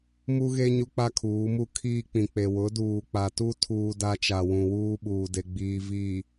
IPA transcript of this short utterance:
m u˦ ɣ e˦ ɲ u˦ k͡p a˦ kʰ uː˨˦ m u˦ kʰ iː˦ k͡p ĩ˨ k͡p e˨ w ʊ˨˦ d uː˨ k͡p a˨ t u˦ tʰ uː˦ d a˦ t͡ʃ a˨ w ũ˨ w uː˦ ɓ uː˨ d e˨ ɡ͡b iː˨ v iː˨

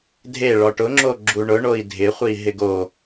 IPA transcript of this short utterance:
dʱ e ɭ ɔ ʈ ʊ ŋ͡ǁ o ɡ͡ǁ u ɳ ʊ ɳ o i̯ dʱ ɪ χʷ i ɦ ɪ ɡ o

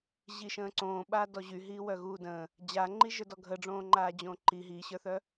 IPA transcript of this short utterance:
ʑ i ʃ ə̃ː ǀ õː ɓ aː d ɔ ʑ y ɦ iː w œ ɣ uː d ə̃ː | d͡ʑ a ŋ͡ǃ i ʒ ə˞ d ɔ ɡʱ ə ɖ͡ʐ õː ŋ͡ǃ aː d͡ʑ õː ǃ i ɦ iː ɕ ə˞ θ œ

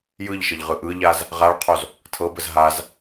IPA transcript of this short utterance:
j ɯ ʎ ʃ ə ʎ ʁ ɯ ʔ ɯ ʎ a z | ʁ a ɭ qʰ o z | tʰ ɤ b ə z ɦ a z

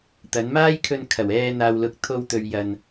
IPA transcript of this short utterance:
t̪ ɐ˨˥ n m aː˥ j kʰ ɵ˧ n kʰ ɐ˨˩ w ɛː˧ n̪ aː˨ w l ʊ˨˥ k̚ t̪ʰ o˧ w t̪ ɵ˨ ɥ j ɐ˨ n

